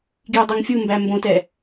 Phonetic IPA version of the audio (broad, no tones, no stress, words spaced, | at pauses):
ɡjudˤuŋfʲumbæ mbõtɛ